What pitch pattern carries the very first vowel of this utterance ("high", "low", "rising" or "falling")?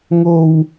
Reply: high